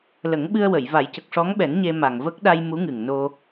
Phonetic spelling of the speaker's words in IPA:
l ə˨˩˦ ŋ ɓ ɨ˧ ə̯ w ə˨˩˨ j v a˨˩˦ j c ə˨˩ k̚ ʂ ɔ˧˥ ŋ ɓ ɛ˨˩˦ n ɲ e˧ m a˨˩ ŋ v ə˦˥ k̚ ɗ a˧ j m u˧˥ ŋ ɨ˨˩ ŋ n o˧

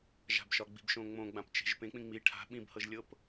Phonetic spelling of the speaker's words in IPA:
ʒ a̤ b ʃ ɒ ɡ͡b i̤ b ʃ õ ŋ͡m õ ɡ͡b ã p t͡ʃ e̤ ʒ p ẽ k͡p ĩ ŋ͡m i ʈʰ a̤ ɓ ĩ b h ɤ ʒ lʲ ɤ p

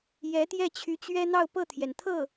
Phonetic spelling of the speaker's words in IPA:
j ɛ˧˥ t̪ j ɛ˥˩ t͡ɕʰ y˧˥ t͡ɕ ɥ ɛ˥ n̪ ɑ˥˧ ʊ̯ p ɤ˥˩ t̪ʰ j ɛ˩ n t̪ʰ ɤ˥˩

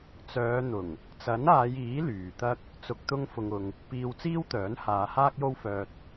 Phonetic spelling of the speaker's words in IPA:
t͡s œː˨˧ n̪ ʊ˨˩ ŋ | t͡s ɐ˨˥ n aː˨˧ j iː˨˥ l yː˨ t̪ ɐ˥ k̚ | t͡s ʊ˨ k̚ t̪ ʊ˧ ŋ f ʊ˧ ŋ ʊ˧ ŋ | p iː˧ w t͡s iː˥ w t̪ œː˨˥ n h aː˨˧ h aː˥ k̚ j o˥ w f œː˧ t̚

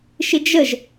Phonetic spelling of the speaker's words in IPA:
ʃ ɪ d͡ʒ ə ʒ

